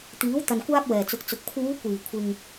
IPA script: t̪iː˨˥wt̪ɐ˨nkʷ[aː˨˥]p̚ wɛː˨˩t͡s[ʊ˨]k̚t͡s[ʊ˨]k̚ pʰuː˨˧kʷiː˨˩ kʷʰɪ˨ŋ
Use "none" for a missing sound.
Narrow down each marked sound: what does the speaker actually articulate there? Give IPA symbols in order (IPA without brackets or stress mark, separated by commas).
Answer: aː˥, ʊ˨, ʊ˨